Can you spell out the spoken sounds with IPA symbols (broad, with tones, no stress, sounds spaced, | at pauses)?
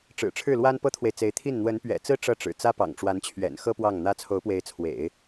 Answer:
ʈ͡ʂ ɻ̩˨˩ ʈ͡ʂʰ ɻ̩˥˩ l w a˥ n p ɤ˥ t̪ʰ w e˨ ɪ̯ t͡s e˧˥ ɪ̯ t̪ʰ i˥˩ n n̪ w ə˧˥ n p ɥ ɛ̰˨˩ t͡s ɹ̩˥ ʈ͡ʂ ɤ˥˩ ʈ͡ʂ ɻ̩˨˩ t͡s ä˥ p ɑ̰˨˩ ŋ ʈ͡ʂ w a˧˥ n t͡ɕʰ ɥ ɛ̰˨˩ n x ɤ˥ p w ɑ˥˩ ŋ n̪ ä˥ t͡sʰ o˧˥ ʊ̯ p w e˧˥ ɪ̯ t͡sʰ w ḛ˨˩˦ ɪ̯